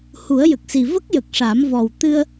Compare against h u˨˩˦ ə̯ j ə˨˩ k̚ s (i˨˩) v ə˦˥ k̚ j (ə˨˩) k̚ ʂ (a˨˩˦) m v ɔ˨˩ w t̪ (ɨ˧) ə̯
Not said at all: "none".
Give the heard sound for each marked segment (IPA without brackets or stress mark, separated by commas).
i˨˩, ə˨˩, a˨˩˦, ɨ˧